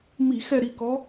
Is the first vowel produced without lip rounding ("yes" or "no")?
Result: yes